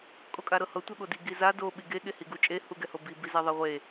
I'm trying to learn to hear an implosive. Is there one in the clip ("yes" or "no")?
yes